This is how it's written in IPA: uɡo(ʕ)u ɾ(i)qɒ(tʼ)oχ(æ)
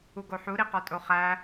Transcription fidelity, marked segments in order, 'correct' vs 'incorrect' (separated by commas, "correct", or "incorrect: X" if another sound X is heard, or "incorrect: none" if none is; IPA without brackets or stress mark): incorrect: ħ, correct, correct, correct